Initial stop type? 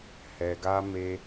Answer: plain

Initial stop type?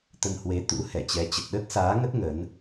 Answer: plain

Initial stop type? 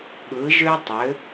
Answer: implosive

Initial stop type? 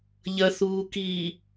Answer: plain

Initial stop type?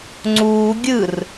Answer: click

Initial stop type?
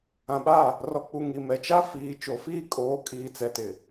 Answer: implosive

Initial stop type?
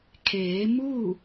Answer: aspirated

